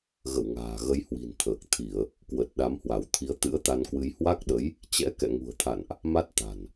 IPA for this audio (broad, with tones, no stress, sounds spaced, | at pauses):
ɣ ə̰˧˨ w ŋ a̤ː˨˩ ɣ ə˧ j h w i̤˨˩ n t̪ʰ əː˨˩ k̚ t̪ʰ i˧˩˨ ə̯ | k w ə˨˩ t̚ ɗ a˨˦ m h w a˧˩ w t̪ʰ i˨˦ ə̯ t̪ ɨ̰˧˥ ə̯ t̪ a˧ n k w ɨ˧ j h w a˦˥ k̚ ɗ ə˨˦ j | t͡ɕ ɛ̰˧˥ k ɛ̰˧˨ ŋ ṳ˨˩ ə̯ t̪ʰ a̰˧˨ n ʔ | m a˦˥ t̚ t̪ a̤˨˩ n